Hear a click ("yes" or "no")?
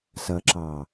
yes